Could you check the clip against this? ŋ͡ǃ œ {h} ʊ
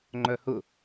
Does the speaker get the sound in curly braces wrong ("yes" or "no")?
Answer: no